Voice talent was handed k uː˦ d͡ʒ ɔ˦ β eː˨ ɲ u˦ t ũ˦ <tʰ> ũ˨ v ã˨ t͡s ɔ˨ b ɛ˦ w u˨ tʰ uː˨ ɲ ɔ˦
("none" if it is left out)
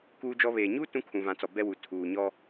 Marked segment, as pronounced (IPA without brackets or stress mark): kʰ